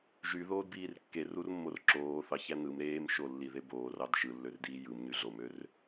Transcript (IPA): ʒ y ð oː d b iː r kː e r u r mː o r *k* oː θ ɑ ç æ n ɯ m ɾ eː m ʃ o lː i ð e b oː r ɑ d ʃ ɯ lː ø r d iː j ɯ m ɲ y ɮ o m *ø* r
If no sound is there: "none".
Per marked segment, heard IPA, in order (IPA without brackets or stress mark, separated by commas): ǁ, ø